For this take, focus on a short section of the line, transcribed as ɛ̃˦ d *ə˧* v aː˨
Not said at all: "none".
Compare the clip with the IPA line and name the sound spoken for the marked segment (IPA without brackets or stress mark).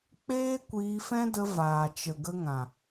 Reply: ə˧